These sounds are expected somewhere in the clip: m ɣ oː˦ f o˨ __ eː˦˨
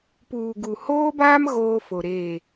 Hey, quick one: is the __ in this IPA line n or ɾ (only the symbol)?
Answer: ɾ